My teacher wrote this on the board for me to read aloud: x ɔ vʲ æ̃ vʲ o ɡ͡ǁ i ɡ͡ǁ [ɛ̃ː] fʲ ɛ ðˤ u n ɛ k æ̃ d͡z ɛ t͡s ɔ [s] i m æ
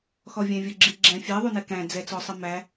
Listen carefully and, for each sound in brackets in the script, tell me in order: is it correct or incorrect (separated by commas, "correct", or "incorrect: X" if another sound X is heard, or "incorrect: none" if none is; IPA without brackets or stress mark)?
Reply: incorrect: ɛ̃, incorrect: sˤ